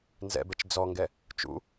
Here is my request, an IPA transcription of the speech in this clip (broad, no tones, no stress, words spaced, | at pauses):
nzɛ̰bɛt͡ʃ d͡zɔŋɡɛ | t͡ʃṵ